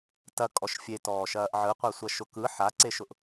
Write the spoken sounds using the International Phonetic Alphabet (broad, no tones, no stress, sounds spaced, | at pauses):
t ɐ kʼ ɔ ʃ fʲ e t ɔː ʃ ɐː ʔ ʕ ɯ qʷ a sʷ ɐ ʃ ʊ k ɯ ħ a ǀ e ʃ ʊ ʔ